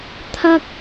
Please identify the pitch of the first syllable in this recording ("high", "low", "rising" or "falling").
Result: high